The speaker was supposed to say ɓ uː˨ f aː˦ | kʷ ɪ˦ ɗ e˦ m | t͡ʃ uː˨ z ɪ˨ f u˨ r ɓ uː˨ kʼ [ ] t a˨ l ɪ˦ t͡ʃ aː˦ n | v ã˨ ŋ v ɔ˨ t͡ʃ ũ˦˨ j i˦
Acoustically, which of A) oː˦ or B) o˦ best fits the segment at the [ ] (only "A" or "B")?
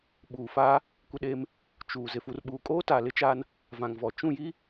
A